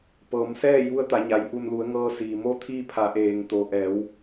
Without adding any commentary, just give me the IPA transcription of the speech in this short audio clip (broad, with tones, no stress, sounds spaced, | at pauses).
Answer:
p ɤː˩˧ m s ɛː˥˨ j u˧˥ ə̯ t̪ a˩˧ ɲ a˩ j ʔ u˧˩ n l u˩˧ ə̯ ŋ ɤː˧ s iː˩ m o˧˥ t̪ʰ iː˧ pʰ a˩˧ ʔ eː˩ ŋ t̪ o˩ ʔ ɛː˩˧ w